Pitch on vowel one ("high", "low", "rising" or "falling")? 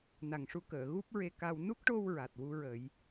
low